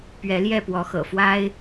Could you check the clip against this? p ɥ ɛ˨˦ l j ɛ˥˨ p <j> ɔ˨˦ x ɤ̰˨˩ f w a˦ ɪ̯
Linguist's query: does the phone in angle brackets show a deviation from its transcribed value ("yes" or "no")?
yes